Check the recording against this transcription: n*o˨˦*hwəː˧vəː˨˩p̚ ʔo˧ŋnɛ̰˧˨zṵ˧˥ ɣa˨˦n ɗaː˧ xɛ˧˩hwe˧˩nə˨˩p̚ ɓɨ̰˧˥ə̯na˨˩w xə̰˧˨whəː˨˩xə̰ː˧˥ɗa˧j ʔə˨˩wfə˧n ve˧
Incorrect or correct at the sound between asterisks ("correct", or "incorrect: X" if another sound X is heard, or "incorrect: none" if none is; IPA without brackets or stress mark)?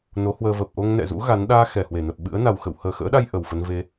correct